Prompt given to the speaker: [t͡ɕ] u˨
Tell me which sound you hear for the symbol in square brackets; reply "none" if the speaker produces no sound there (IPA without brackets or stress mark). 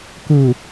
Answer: k